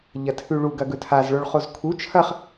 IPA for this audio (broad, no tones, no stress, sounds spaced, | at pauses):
ʎ ɐ tʰ ʉ ɭ u ɡ ɐ ɡ ɵ tʰ a z ɭ o ɭ χ o z kʰ u t͡ʃʰ ɐ χ